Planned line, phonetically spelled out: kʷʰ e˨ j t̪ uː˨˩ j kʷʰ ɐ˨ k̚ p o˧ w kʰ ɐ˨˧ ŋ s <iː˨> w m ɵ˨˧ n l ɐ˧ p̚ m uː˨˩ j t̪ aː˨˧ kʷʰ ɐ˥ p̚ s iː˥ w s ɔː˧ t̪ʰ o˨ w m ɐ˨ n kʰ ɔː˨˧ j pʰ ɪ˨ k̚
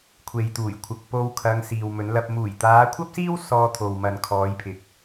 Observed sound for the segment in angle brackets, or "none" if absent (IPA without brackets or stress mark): iː˨